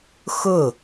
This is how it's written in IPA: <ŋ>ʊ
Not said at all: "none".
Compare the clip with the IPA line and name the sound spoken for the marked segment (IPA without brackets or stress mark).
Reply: x